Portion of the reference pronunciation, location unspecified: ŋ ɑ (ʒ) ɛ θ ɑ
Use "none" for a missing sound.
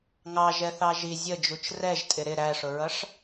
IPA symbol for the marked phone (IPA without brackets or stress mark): ʒ